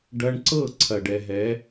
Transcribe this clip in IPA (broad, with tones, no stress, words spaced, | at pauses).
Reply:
ɖɐ˧ɳǀɤ˦˨ ǀʰɐ˨ɖɛ˨ɦɛ˨˦